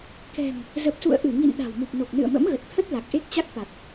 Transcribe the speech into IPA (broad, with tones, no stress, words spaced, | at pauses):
kɛ̤˨˩ŋ | zə˨˩p̚sṵ˧˨ə̯ʔɨ˧˩ŋḭ˧˨n ɗa̤˨˩wmu˨˩p̚no˨˩k̚ nɨ̰˧˨ə̯mə̰˧˥mɣə˨˩t̚t̪ʰə˦˥t̚ la˨˩k̚ʔe˦˥k̚t͡ɕa˦˥k̚ t̪a˨˩t̚